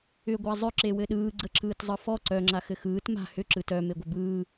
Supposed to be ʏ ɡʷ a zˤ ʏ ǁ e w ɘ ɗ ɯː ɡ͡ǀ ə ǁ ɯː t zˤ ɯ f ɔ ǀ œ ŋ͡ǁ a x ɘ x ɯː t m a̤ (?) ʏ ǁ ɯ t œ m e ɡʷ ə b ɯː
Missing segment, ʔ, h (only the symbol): h